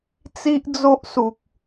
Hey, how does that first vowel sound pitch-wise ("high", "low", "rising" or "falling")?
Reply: high